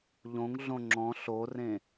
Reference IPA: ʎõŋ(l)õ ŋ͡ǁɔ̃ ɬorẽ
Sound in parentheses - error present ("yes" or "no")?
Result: yes